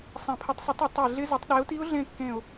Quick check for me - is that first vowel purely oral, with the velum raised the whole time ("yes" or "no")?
no